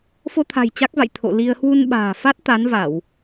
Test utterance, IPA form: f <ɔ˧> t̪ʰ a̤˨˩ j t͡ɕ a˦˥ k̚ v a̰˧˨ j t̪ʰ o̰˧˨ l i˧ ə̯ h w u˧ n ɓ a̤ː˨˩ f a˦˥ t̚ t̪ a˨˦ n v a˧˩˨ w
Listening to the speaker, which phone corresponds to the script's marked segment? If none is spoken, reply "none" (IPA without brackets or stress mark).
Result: o˧